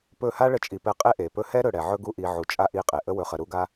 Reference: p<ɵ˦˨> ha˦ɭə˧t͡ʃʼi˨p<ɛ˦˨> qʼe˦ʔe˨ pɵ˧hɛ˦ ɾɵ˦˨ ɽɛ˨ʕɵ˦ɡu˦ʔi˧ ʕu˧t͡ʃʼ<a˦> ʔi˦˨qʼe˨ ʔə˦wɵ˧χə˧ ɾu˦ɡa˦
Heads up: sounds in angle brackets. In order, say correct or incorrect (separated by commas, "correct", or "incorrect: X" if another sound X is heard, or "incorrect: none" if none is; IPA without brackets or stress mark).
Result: correct, incorrect: ɛ˧, correct